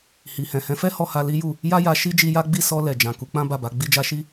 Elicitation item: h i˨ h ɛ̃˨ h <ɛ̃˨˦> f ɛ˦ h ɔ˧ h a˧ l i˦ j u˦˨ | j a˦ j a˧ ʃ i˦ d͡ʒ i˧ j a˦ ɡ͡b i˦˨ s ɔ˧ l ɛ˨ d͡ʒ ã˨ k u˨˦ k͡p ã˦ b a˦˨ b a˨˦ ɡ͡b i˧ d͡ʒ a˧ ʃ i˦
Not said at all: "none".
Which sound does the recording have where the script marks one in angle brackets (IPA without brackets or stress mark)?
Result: ɛ̃˨˦